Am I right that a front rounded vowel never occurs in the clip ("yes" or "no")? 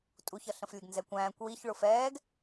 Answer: yes